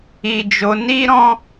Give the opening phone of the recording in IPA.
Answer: i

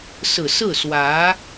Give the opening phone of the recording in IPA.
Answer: s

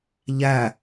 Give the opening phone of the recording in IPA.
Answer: ʎ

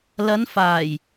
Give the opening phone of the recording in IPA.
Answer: l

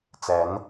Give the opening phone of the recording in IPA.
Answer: t͡s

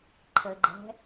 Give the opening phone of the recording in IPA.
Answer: ǃʰ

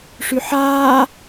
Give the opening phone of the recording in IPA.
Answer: ʂ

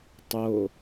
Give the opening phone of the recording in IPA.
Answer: tˤ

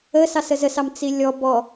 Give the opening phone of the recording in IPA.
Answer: ə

